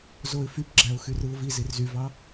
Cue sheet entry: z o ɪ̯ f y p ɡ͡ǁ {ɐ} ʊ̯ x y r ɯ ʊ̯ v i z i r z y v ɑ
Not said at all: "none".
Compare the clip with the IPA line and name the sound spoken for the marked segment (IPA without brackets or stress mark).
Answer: æ